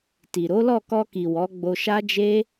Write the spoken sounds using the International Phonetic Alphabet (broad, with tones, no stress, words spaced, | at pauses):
ti˨ ɾo˨˦lɔ˦˨kɔ˧ki˨ wɔ˨˦ɡ͡bo˧ʃa˦d͡ʒe˦